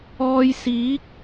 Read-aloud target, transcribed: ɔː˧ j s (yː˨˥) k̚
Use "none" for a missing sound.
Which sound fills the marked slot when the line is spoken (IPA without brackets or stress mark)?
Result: iː˨˥